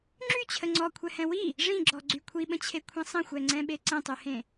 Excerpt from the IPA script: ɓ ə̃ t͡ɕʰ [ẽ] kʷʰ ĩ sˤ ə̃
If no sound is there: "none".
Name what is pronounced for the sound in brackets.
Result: e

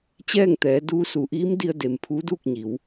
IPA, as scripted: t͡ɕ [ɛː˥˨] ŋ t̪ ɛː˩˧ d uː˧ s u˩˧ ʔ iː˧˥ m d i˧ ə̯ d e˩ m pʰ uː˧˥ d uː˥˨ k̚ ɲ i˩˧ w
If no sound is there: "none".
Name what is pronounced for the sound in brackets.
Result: ɛː˥˨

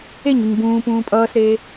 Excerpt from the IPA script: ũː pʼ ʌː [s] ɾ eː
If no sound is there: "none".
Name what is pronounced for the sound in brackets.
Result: s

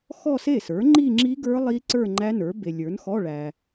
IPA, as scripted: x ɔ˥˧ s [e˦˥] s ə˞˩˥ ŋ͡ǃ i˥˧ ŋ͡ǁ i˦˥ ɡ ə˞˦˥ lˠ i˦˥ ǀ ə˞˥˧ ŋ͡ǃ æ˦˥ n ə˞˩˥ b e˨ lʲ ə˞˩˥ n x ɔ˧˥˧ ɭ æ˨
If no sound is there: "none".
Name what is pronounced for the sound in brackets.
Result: e˥˩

